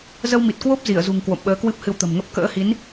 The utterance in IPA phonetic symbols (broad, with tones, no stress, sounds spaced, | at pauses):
z ə˧ w m i˨˩ t̚ k w o˦˥ p̚ z i˧˩ ə̯ z ṳ˨˩ ŋ k w o̰˧˨ m ɓ əː˨˦ k w ɨ˦˥ p̚ h ɨ˧ w t̪ ə̤˨˩ m ŋ ə˦˥ p̚ k ə̰ː˧˥ h i˨˦ n